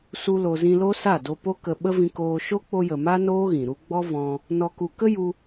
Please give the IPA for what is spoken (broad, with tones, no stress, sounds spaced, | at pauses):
s u˦ l o˧ z ĩ˧ l o˦ s a˦˨ d o˧ p o˦ k ə˧ ɓ ə˦ v ĩ˧ k oː˧ ʃ o˦ k͡p o˧ j ə˨ m a˦ n oː˦ ɣ ĩ˨ ɾ u˦ ɡ͡b ɔ˦ v ɔ̃˧ | n ɔ˧ k u˧ k ə˦ j u˧